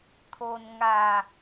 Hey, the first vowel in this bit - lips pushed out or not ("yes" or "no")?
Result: yes